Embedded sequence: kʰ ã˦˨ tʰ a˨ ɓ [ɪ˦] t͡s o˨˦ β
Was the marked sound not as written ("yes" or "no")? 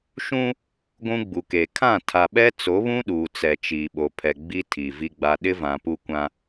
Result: yes